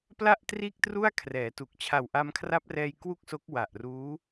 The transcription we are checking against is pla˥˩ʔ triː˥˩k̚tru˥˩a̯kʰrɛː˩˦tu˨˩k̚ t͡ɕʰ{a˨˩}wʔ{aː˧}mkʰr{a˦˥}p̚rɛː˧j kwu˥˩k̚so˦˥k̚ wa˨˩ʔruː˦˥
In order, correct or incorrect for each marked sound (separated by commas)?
correct, incorrect, correct